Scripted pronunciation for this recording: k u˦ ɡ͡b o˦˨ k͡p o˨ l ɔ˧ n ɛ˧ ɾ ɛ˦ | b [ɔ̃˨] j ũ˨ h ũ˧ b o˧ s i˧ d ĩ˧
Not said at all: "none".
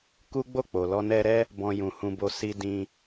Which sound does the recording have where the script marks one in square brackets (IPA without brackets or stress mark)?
ɔ̃˧